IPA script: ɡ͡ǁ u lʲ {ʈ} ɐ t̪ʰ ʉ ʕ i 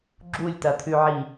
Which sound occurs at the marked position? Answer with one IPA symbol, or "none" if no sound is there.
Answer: t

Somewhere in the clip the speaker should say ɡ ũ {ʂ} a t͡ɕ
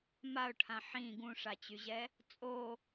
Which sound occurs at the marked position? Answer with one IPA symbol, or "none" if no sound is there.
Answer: ʂ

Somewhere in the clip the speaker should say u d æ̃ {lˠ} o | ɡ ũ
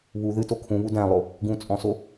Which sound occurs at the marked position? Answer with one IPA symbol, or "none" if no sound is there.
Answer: lˠ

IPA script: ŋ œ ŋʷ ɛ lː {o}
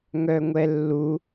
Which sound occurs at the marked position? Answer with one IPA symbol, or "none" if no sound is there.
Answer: u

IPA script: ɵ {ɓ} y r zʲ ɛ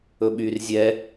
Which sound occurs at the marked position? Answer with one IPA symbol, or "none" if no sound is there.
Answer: ɓ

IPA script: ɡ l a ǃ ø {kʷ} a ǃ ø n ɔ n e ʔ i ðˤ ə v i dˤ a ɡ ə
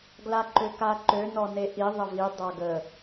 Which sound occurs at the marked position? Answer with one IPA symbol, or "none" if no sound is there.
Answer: k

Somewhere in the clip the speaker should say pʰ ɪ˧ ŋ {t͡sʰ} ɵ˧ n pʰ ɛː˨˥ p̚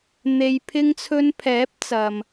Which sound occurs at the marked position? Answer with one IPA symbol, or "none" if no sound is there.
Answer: t͡sʰ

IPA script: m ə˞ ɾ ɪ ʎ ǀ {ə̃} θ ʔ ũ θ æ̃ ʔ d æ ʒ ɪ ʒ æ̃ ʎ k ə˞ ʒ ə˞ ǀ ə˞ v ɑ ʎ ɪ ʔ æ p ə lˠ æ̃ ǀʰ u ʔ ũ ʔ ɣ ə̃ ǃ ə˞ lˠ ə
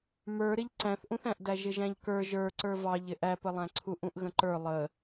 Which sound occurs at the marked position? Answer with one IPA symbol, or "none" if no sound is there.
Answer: æ̃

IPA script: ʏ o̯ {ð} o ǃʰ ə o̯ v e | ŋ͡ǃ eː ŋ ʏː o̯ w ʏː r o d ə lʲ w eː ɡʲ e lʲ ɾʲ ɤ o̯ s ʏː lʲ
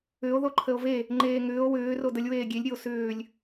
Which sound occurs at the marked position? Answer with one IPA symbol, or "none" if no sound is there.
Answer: ð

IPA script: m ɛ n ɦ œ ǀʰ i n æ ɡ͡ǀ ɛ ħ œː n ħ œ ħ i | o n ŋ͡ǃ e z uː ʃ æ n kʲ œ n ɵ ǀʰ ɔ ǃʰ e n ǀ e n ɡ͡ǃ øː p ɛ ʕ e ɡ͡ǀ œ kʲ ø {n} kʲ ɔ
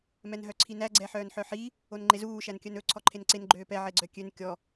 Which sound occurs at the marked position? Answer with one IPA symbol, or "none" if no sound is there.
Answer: n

